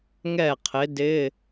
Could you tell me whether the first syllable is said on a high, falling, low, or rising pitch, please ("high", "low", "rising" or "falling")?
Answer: falling